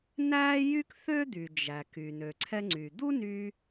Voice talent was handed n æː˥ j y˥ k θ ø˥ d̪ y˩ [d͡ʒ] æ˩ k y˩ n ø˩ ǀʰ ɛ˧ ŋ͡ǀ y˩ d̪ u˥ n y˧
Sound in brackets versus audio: correct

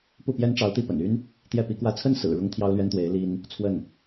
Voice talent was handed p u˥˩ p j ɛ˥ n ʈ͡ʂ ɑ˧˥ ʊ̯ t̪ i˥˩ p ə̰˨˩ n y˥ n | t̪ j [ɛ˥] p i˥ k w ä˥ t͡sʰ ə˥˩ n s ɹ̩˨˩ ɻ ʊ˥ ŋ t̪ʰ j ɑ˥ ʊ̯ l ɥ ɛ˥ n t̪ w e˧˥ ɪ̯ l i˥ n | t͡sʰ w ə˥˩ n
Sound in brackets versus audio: incorrect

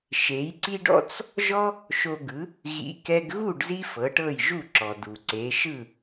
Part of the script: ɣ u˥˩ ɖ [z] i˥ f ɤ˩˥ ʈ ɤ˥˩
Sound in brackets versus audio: correct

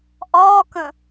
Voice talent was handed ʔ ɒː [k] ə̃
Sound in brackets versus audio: correct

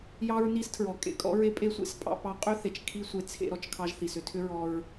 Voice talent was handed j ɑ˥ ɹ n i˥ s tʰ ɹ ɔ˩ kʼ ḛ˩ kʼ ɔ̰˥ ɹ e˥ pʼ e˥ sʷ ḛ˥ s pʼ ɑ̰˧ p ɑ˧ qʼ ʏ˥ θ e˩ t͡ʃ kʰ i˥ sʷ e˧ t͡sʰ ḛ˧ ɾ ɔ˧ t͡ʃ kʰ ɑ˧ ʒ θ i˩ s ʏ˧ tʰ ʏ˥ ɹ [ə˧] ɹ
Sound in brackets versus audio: incorrect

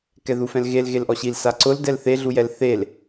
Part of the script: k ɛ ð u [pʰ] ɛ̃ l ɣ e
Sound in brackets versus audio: incorrect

